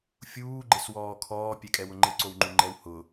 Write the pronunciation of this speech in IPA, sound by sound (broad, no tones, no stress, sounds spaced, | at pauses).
fʲ uː ɡ͡ǃ ɪ s w ɔː kʰ ɔː pʲ ɛ kʼ ɛ w ʊ ŋ͡ǃ ɪ ǀ o w ŋ͡ǃ u ŋ͡ǃ ɛ w h ʊ